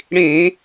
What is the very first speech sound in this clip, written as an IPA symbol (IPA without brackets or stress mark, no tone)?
ɽ